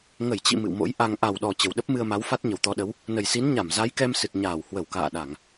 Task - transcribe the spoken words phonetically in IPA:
ŋə˧˩jt͡ɕḭ˧˨ mɨ̰˧˨wmo̰˧˥j ʔa˧ŋ ʔa˨˩wɗɔ˨˩ t͡ɕə˨˩wɗə˦˥p̚mɨ˧ə̯ma˨˦w fa˦˥t̚ɲə˨˩wt̪ɔ˨˦ɗə˨˦w | nə˨˩jsi˨˦nɲa˧˩m za˨˦jkɛ˧msɨ˨˩t̚ɲaː˧˩w hwə˧˩wka̰ː˧˨ɗa˧˩˨ŋ

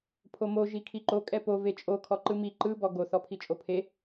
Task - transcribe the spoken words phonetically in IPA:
pʰomo ʒikʰiǃo kʼɛpo vet͡ʃʼo kʰɔǃɯmi ǃɯ bɔɡo θɔpʰit͡ʃʼopʰe

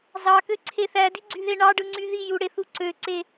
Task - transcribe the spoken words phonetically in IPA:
zɑkøǀʰe θædiɡ͡ǀyðe ɳɑɖɯŋ͡ǀy ðiju ɽeθu ǀøǀe

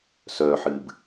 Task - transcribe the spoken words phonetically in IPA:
sœːħɨːb

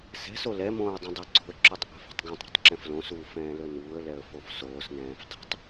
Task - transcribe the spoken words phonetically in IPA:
sɛ̤so lɛmõːə̯ dˤɛ̃dˤoǀo̤ə̯ǁʉtˤ ʔɛ̤fo̤tˤɡõtˤɾo̤tˤ ǁɛ̃flõsuː fɛ̃ːlɵnuːə̯lɛə̯ fofsoːsnɛ̃ːf dˤɛ̤tˤ

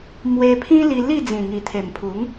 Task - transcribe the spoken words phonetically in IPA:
mwe˧pʰĩ˦ li˧li˥˧ d͡zĩ˨˩ŋi˨˩t̪ʰe˨˩mpʰu˨˦ŋ

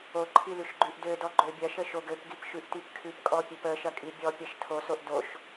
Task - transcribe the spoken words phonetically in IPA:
oǃʰi lʉʃɡ͡ǃʉʔdødɔ ɡ͡ǃøbʲɐʃə ʃoɡøpɡip ʃʉʔtipkʰʉpkʼɔ pʲøpəʃɐ kʼibʲɔpʲɐʃ tʰosoʔ doʃ

